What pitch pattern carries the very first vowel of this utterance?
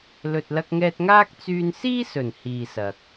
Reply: low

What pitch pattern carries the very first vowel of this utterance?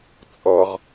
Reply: low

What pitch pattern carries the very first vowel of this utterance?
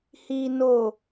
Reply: low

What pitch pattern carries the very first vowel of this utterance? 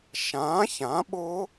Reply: rising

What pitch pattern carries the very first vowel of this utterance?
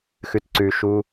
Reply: low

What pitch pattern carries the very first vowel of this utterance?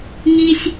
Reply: high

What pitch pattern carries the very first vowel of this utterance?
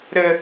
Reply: high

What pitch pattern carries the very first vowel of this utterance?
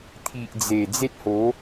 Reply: low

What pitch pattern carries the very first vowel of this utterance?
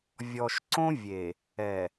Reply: low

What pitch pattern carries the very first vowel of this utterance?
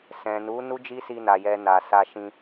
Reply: low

